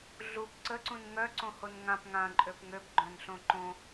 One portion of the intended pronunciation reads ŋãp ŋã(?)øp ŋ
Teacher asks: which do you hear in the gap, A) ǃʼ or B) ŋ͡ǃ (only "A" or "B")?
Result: A